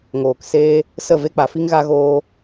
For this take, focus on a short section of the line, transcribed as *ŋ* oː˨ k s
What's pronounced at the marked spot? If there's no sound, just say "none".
ŋ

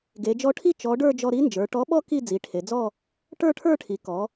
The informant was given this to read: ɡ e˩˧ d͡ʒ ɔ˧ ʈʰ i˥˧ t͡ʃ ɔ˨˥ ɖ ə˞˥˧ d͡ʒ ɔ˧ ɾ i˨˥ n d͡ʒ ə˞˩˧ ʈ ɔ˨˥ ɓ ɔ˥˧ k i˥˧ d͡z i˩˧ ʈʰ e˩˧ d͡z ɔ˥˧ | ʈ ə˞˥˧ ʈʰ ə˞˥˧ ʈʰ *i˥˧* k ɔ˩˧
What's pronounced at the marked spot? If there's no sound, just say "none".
i˩˧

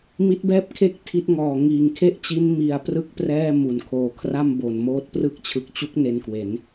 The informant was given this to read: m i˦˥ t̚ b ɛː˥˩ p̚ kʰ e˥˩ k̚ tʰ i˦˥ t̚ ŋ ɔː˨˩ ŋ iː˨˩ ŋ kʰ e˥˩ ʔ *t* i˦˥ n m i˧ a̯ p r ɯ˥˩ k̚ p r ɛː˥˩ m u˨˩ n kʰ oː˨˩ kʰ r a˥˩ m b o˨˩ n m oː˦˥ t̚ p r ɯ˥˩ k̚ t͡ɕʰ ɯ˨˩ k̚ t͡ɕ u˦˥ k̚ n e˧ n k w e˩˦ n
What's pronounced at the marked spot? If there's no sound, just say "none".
t͡ɕ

